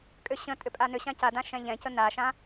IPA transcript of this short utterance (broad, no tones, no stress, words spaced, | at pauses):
kʼʏɕə̃ tʼʏpʼanʏɕã cadã ʃɛ̃ʎɛ̃cə naʃã